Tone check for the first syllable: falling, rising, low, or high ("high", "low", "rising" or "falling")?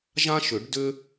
high